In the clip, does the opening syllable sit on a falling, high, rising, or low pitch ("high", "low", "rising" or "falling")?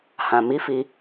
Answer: low